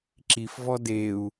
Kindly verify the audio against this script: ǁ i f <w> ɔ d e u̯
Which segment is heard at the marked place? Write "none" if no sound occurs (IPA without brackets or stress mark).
v